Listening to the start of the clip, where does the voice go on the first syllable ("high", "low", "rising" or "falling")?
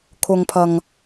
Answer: low